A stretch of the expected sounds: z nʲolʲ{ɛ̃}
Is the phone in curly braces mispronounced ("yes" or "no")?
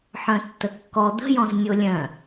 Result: yes